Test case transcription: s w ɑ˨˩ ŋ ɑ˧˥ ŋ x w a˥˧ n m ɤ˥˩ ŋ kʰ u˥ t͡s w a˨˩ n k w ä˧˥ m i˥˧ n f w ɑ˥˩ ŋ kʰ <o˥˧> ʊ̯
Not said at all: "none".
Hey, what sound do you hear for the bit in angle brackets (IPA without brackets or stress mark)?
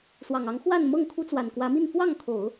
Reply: o˨˩˦